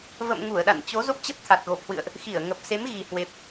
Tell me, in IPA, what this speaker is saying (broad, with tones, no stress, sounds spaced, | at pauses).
v ə̰˧˨ m ŋ u˧˩ ə̯ ɗ a̰˧˨ n t͡ɕ o˨˦ z o˦˥ p̚ t͡ɕ ə˦˥ p̚ t̪ʰ a˨˩ t̚ ɣ o˨˩ p̚ h w ɨ̰˧˨ ə̯ ʔ | x i˧˩ ə̯ ŋ ə˨˩ p̚ s e˨˦ m ɣ i˨˩ h w e˨˩ p̚